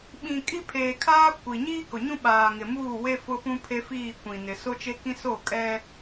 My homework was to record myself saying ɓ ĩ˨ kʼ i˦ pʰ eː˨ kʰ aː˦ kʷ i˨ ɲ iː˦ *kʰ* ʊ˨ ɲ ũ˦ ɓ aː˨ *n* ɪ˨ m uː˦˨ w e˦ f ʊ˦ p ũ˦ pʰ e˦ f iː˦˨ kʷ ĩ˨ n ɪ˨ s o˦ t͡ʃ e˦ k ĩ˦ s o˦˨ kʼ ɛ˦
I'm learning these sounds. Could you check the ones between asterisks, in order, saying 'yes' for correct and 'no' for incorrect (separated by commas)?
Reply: no, no